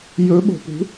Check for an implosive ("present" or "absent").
present